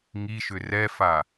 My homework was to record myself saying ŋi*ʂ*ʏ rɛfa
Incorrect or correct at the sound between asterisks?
incorrect: ʃ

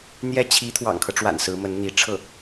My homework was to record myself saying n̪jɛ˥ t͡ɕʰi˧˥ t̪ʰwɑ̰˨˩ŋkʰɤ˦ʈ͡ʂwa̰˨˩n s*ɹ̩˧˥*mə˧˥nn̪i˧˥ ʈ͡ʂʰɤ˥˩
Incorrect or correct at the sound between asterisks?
correct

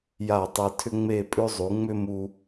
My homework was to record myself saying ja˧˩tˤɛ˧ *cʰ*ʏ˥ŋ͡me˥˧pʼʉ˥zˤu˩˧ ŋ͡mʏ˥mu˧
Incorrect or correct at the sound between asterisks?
incorrect: tʰ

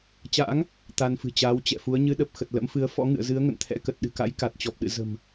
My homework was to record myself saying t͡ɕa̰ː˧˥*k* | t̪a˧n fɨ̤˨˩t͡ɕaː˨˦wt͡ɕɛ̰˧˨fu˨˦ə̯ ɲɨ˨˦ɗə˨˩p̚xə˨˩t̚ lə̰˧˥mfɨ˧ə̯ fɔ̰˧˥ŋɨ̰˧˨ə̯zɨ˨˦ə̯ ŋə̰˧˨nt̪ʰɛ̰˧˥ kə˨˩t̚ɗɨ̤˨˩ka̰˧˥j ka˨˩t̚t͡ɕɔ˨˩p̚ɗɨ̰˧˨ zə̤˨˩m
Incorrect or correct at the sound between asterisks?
incorrect: ŋ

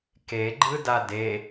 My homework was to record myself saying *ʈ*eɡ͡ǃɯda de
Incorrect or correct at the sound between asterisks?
incorrect: k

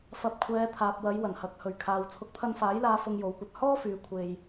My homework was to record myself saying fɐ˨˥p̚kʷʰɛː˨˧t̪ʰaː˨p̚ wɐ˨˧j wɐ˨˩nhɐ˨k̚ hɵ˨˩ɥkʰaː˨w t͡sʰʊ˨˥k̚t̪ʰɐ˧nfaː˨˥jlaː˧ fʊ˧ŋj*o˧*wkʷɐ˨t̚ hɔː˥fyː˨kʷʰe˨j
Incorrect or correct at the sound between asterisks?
incorrect: o˨˥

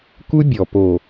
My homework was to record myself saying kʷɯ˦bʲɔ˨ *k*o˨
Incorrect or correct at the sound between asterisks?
incorrect: p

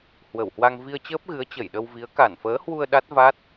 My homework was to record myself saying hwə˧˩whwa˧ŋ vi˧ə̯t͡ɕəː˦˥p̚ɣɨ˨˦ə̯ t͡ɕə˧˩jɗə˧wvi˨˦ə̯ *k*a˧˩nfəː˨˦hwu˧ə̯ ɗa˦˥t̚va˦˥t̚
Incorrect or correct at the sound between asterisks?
correct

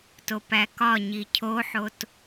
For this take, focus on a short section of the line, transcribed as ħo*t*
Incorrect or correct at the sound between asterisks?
correct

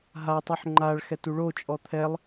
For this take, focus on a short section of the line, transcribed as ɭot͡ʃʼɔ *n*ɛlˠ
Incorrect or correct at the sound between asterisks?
incorrect: t̪ʰ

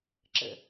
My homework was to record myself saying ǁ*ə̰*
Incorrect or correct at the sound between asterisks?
correct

